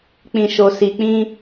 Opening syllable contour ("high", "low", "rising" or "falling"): low